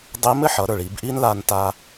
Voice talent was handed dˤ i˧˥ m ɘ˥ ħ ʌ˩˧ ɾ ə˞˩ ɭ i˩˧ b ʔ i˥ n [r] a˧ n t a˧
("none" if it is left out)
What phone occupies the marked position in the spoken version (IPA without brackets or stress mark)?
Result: l